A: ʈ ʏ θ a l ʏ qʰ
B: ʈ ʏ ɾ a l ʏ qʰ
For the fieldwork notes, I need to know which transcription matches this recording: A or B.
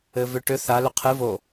A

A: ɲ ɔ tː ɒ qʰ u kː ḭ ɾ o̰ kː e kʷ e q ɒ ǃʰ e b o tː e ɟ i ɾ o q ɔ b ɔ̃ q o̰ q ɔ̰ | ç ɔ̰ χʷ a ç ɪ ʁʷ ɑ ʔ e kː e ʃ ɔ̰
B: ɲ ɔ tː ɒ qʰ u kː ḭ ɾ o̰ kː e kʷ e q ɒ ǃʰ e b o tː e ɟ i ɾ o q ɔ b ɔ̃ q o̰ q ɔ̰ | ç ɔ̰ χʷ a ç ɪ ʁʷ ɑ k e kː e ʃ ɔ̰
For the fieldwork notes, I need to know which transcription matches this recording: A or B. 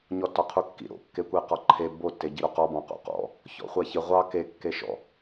B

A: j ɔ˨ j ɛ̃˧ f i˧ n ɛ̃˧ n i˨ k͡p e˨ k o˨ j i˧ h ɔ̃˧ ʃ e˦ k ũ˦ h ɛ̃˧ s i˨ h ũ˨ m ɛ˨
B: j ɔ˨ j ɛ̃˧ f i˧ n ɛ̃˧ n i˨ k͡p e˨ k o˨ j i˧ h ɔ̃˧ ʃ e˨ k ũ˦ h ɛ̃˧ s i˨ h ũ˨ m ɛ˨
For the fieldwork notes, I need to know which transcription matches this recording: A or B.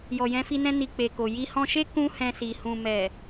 A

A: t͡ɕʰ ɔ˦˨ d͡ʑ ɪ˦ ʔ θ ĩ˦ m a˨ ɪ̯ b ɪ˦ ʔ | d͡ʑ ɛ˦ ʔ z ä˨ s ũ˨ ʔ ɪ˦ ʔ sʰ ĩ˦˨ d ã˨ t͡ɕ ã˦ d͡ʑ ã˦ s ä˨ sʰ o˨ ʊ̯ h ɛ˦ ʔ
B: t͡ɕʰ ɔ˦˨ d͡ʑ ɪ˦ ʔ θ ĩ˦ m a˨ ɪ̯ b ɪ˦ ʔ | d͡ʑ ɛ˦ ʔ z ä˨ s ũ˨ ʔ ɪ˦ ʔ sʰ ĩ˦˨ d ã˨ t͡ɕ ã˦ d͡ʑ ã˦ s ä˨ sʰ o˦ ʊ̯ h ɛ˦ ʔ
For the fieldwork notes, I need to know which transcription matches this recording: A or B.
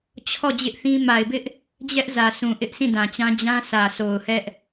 A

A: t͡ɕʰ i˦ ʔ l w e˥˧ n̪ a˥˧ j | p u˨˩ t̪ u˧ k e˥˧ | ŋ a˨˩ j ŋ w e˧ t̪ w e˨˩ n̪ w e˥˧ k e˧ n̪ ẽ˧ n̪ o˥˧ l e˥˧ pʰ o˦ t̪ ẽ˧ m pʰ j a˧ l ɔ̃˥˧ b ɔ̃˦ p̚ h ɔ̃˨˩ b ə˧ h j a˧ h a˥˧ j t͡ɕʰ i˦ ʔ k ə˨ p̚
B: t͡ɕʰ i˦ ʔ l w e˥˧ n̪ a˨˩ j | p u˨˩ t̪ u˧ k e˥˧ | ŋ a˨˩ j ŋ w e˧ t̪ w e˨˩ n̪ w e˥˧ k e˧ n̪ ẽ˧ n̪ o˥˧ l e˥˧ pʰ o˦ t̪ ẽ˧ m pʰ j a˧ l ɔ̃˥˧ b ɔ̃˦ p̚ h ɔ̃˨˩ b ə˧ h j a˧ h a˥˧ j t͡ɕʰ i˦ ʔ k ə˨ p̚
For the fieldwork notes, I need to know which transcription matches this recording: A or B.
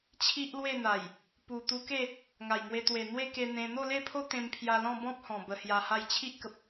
B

